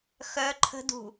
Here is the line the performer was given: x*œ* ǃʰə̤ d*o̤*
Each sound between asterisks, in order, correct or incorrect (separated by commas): correct, incorrect